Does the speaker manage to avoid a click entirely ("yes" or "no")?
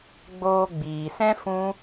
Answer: yes